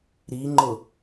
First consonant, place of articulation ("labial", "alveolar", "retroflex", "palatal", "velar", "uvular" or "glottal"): alveolar